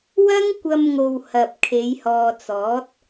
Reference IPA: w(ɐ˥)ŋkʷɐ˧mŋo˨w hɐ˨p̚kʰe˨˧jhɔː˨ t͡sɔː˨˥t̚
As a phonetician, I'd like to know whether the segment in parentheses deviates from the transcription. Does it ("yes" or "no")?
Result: no